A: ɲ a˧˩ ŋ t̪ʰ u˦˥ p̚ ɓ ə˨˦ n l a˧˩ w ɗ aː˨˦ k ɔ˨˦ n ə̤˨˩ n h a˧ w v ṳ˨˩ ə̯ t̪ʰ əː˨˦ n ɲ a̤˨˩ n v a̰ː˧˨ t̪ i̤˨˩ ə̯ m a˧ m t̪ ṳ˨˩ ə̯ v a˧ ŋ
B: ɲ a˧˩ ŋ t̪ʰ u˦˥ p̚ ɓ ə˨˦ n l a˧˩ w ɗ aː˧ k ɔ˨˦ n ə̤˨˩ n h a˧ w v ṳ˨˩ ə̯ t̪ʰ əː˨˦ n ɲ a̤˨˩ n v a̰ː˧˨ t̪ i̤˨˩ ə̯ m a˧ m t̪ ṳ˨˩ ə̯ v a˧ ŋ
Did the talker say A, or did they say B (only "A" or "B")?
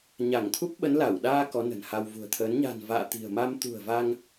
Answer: B